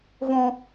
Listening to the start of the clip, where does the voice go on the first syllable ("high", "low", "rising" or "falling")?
high